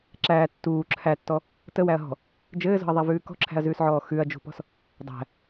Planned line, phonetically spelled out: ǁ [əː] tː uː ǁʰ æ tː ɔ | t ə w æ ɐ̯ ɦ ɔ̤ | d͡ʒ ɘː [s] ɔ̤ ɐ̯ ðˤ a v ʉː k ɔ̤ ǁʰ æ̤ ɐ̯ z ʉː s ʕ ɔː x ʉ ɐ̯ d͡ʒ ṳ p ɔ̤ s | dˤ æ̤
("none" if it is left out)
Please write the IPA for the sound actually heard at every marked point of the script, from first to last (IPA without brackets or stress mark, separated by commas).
æː, z